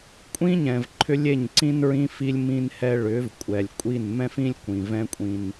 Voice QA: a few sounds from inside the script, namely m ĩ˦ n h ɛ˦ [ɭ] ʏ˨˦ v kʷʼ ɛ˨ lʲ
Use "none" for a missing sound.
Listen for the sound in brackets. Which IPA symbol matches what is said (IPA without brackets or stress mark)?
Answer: ɭ